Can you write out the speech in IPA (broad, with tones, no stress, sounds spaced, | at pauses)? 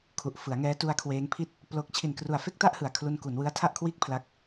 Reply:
kʰ u˨˩ ʔ f ɯ˩˦ a̯ ŋ ɛː˦˥ t u˦˥ a̯ kʰ w eː˦˥ ŋ pʰ i˥˩ t̚ | p l o˦˥ k̚ t͡ɕʰ i˨˩ n k r u˨˩ a̯ f e˥˩ k̚ t a˥˩ ʔ h ɯ˨˩ a̯ kʰ l u˧ n k u˩˦ n w ɯ˦˥ a̯ tʰ a˥˩ ʔ kʰ w iː˥˩ k̚ pʰ l a˦˥ k̚